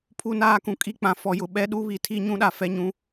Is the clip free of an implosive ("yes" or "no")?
no